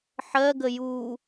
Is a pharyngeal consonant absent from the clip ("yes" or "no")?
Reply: no